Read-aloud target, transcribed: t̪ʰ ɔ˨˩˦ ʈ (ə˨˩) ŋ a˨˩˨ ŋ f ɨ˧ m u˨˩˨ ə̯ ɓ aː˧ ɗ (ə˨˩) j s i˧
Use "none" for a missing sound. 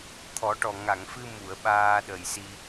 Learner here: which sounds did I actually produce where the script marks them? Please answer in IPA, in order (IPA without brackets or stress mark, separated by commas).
ɔ˨˩, ə˨˩